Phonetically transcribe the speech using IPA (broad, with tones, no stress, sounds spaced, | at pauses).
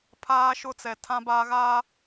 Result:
pʰ aː˦ ʃ ʊ˦ t͡s ɛ˨ tʰ ã˦ b aː˦ ɣ a˦